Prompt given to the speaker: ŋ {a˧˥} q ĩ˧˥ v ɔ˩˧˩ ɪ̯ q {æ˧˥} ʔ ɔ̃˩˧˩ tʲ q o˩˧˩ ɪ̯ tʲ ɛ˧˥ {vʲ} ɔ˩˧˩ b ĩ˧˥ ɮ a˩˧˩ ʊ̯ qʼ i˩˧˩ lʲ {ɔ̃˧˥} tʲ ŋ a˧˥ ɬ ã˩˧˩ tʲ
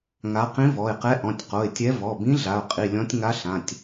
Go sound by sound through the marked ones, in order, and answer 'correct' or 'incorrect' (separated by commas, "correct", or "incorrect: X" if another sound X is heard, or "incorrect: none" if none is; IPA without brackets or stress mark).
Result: correct, incorrect: ɛ˧˥, incorrect: v, correct